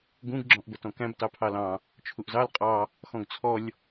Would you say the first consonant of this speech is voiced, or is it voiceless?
voiced